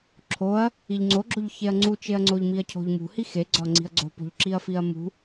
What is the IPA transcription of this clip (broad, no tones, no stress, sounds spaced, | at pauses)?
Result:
ǁʰ o ɐ̯ | i ʎ ŋ͡ǀ o ɡ͡ǁ o ʎ ç e ɐ̯ ŋ͡ǀ u t͡ʃ e ɐ̯ ŋ͡ǀ o ʎ m i ɐ̯ cʰ o̤ ʎ m ṳ h i x e ɡ͡ǀ ɒ ŋ͡ǀ i̤ ɐ̯ ɡ͡ǀ o̤ p o̤ ʎ ǁ i ɐ̯ f i ɐ̯ m ṳ